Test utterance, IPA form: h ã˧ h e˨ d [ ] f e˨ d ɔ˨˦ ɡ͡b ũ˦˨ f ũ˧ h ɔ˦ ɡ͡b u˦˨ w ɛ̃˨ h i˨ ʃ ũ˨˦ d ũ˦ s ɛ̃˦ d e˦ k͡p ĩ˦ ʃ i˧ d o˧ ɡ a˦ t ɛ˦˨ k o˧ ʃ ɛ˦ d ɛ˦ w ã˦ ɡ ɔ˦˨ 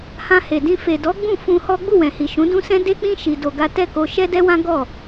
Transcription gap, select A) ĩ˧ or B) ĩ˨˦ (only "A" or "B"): A